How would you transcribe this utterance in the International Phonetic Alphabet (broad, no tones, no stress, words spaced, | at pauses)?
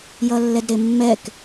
jʌlːɛdɾemːɛk